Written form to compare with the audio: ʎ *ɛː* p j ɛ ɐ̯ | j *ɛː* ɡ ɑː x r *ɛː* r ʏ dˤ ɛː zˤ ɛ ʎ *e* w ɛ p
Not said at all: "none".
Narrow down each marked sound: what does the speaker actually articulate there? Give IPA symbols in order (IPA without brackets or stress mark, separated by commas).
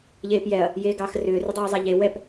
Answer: eː, eː, ʏː, e